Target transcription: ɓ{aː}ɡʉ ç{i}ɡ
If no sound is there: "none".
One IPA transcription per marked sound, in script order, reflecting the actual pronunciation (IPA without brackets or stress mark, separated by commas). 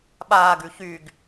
aː, y